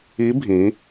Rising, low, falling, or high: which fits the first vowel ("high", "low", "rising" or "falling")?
rising